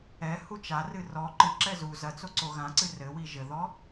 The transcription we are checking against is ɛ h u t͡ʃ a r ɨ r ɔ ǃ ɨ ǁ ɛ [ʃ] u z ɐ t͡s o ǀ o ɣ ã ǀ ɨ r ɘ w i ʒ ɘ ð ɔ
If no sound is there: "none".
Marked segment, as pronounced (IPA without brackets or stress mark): z